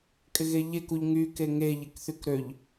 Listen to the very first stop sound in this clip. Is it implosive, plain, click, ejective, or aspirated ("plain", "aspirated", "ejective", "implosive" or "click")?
ejective